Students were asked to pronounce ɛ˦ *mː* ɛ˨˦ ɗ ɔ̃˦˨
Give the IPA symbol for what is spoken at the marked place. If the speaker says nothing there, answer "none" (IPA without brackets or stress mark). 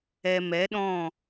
m